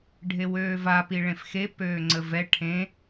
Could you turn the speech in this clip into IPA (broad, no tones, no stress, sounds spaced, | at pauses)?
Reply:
ɖʱ e w øː v a p i ɭ ẽ f x e p øː ŋ͡ǀ ə v ɛ ʈʰ ẽ